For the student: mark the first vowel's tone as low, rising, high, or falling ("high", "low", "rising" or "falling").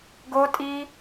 high